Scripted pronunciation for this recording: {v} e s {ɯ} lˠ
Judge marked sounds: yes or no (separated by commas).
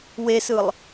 no, yes